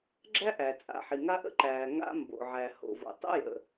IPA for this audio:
ɡ͡ǁ æ˥ ʔ æ˩ t͡sʼ a̰˩ ħ i˩ ŋ a˥ ʔ ə̰˥ ǃ æː˩ ŋ a̰˥ m b o̰˩ ʕ æ˩ h o̰˩ v o̰˩ tˤ ə̰˥ j ə̰˩

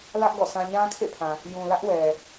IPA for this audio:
l ä˦ ʔ ɡ ɔ̰˦˨ s ã˦ ɲ ã˦ kʰ ḛ˦˨ pʰ ã˨ | j ũ˨ l ä˦ ʔ w ɛ˨

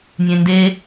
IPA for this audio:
nʲ ẽ n d e

